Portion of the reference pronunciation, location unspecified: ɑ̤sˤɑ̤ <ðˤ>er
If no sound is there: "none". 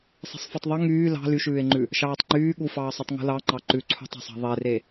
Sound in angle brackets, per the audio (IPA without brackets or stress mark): ðˤ